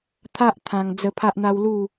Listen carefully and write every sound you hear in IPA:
t̪ʰ a˦ ʔ t̪ʰ ã˧ ŋ d͡z ə˧ pʰ a˦ ʔ n̪ a˦ w l u˥˧

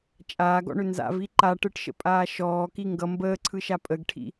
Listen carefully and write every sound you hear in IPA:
t͡ʃʼ aː ɡ ɔ̰ ɳ ʏ n z a̰ v i ǃ a ʈ ɯ ʈ ʃ ə̰ pʼ aː ʃ ɔː k i ŋ ɡ ʌ m b əː ǀʰ ɯ ʃ a pʼ ə ɡ ʈʰ ḭ

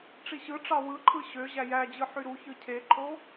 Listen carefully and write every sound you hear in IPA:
ʈ͡ʂ i ɕ ɯ ʈ͡ʂ ɑ w ɯ ǃʰ ɯ ɕ ø ʑ æ j æ d͡ʑ ɯ ħ y ɾ u ç ɯ cʰ e ǃʰ o

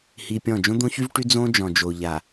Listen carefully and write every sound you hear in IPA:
h i˨ pʲ ɔ̃˦˨ d͡ʒ õ˦ d̪ õ˦ ç y˦ v ʈ y˦ d͡z õ˦ d͡ʒ ɔ̃˨ d͡ʒ o˨ ʎ a˨

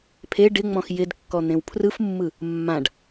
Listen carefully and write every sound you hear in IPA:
pʰ e ɖ ɪ ŋ͡m ɔ̃ x j ɪ d kː ɔ n̪ ẽ w pʰ r ɯ f mː ɯ | mː ã ɖ

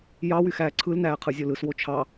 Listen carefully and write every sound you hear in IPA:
j ɑ w y x æː ǀʰ ɯ l n æː qʰ ɯ zʲ o l ɯ s w o t͡ʃʰ ɑ

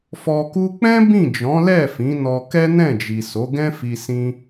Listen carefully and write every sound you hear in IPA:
f ɔ˧ k u˦ k͡p ɛ̃˦ b ĩ˦˨ d͡ʒ ɔ̃˨˦ l ɛ˦˨ f ĩ˨˦ n ɔ˧ k ɛ˦ n ɛ̃˦˨ d͡ʒ i˨ s o˨˦ ɡ ɛ̃˦ f i˧ s ĩ˦

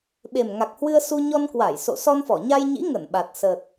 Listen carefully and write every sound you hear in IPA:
ɓ e˨˩ m ŋ a˨˩ k̚ h w ɨ˧ ə̯ s u˧ ɲ ɔ˧ n k w a˧˩ j s o̰˧˨ s ɔ˧ n f ɔ˧˩ ɲ a˧ j ɲ ḭ˧˥ ŋ ə˧˩ n ɓ a˨˩ t̚ s ə˨˩ t̚

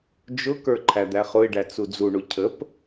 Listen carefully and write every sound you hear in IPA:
d͡ʒ ʊ k ə˞ ǃʰ æ d̪ æ χ ʊ ɪ̯ ɖ æ t͡s u d͡z u ɳ u cʰ ə p

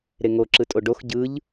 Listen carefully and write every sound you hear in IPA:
ɾ e ŋ o ǁ ɯ tʼ o ɖ o x ɟ ɯ ʎ

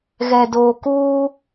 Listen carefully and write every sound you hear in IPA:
ɣ ɛ˨ d oː˨ k uː˦

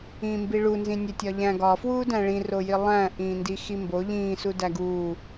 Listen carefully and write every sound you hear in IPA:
ĩː m b i ɭ u n z ĩ nʲ e tʲ ɒ ʎ æ̃ ɡ ɒ f w uː d æ̃ ɭ ĩ r o j i lˠ æ̃ ʔ ĩː n d i x i m b o ʎ ĩː s u d æ ɡ uː

